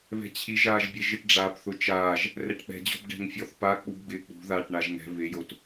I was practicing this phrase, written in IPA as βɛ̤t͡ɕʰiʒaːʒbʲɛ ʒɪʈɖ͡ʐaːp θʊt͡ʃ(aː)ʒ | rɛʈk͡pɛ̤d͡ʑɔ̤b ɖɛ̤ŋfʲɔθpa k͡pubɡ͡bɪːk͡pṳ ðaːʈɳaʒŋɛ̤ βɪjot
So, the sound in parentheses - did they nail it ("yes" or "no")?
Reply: yes